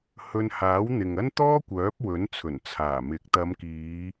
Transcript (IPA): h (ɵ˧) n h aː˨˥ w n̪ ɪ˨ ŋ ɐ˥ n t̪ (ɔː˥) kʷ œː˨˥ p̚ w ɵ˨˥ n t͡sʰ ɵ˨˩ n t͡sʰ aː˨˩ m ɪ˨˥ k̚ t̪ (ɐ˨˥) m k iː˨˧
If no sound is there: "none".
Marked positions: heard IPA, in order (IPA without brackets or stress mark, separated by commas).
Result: ɵ˧, ɔː˥, ɐ˨˧